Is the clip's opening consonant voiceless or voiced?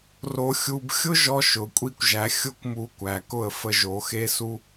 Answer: voiced